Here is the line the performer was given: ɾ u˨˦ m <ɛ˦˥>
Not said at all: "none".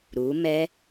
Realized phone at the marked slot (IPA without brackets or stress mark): ɛ˦˥